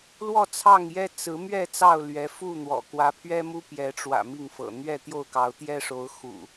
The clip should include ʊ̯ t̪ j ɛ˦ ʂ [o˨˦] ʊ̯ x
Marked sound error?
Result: no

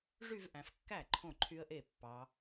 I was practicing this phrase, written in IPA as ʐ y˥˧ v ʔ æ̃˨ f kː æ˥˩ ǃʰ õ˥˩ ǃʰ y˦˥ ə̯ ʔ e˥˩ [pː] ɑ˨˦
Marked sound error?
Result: no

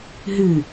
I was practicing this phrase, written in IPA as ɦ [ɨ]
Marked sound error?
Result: no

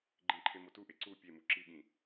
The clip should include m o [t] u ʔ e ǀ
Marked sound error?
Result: no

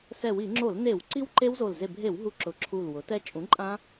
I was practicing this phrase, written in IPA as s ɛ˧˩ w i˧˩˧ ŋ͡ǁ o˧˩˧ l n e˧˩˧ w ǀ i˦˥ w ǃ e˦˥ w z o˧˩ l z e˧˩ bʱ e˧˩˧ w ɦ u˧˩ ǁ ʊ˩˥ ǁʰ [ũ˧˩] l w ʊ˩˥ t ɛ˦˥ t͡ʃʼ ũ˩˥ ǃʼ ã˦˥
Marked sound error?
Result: yes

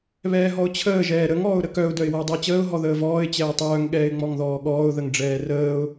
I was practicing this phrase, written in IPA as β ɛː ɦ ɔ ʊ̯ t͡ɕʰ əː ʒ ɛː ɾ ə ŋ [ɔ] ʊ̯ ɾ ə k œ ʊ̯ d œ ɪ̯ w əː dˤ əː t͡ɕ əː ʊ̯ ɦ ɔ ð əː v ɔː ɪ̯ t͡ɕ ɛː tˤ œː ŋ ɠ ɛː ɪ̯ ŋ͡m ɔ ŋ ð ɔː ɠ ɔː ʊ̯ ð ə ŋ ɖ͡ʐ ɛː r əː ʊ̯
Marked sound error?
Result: yes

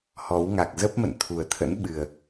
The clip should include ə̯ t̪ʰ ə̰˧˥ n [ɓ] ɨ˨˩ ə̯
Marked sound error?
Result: no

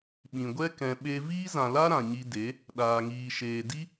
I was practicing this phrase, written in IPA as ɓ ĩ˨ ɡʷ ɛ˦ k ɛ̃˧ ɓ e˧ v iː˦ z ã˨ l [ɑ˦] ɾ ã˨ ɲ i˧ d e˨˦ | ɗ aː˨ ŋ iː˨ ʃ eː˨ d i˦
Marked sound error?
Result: yes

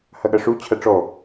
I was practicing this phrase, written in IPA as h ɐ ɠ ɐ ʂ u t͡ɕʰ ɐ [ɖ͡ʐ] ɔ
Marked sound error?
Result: yes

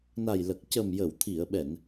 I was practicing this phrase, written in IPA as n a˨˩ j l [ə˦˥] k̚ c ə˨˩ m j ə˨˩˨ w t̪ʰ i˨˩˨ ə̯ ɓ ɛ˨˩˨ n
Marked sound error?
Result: yes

